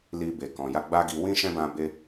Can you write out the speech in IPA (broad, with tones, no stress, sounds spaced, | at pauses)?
l i˧ b e˨ k ɔ̃˨ j a˧ ɡ͡b a˦ ɡ i˧ w ĩ˦ ʃ ɛ̃˦ b ã˧ b e˧